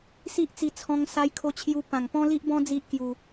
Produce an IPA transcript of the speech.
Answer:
s i˦ ʔ t͡s i˧ t͡sʰ ɔ̃˧ ŋ s a˧ j kʰ o˧ t͡ɕʰ j u˧ p ã˨˩ ŋ p ɔ̃˦ l i˦ ʔ b ɔ̃˦ d͡z i˦ ʔ k j u˧

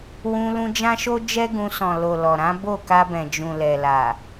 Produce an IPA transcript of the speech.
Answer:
w ũ˧ l ũ˧ d͡ʒ ã˦ ʃ o˦ d͡ʒ ɛ˦ ɡ ũ˧ s ɔ̃˨ l o˨ l ɔ˨ ɾ ã˨˦ b o˦˨ k a˧ b ɛ̃˨ d͡ʒ ũ˨ l ɛ˨ l a˨

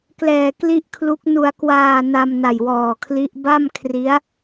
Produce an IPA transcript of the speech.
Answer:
k l ɛː˨˩ k l i˦˥ ʔ kʰ l u˦˥ k̚ n u˩˦ a̯ k w aː˨˩ n a˧ m n a˨˩ j w ɔː˨˩ kʰ l i˦˥ ʔ b a˥˩ m kʰ r i˦˥ a̯

